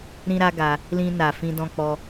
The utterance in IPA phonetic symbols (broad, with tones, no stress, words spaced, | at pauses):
ɾĩ˦ɾa˦ɡa˧ | lĩ˧na˨ fĩ˧dɔ̃˧k͡pɔ˧